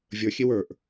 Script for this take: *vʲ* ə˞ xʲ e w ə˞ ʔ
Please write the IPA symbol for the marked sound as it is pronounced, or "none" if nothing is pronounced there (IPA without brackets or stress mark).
vʲ